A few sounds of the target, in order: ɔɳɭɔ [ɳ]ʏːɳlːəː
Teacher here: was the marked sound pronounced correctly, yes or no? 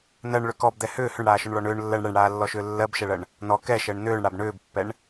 yes